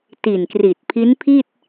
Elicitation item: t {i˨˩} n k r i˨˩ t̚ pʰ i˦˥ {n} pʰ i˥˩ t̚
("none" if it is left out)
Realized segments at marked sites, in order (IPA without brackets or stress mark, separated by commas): i˨˩, n